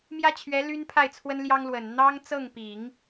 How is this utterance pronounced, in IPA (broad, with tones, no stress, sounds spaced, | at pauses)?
m j ä˥ t͡ɕʰ ɥ ɛ˧˥ l y˥ n pʰ a˥˩ ɪ̯ t͡sʰ w ə˥ n l j ɑ˥ ŋ l w ə˨˩ n n̪ ɑ˥ ŋ t͡s ɤ˥˩ ŋ p i˨˩˦ ŋ